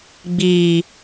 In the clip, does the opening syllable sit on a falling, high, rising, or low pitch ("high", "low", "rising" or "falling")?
low